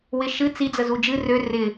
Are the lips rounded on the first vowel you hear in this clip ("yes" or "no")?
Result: no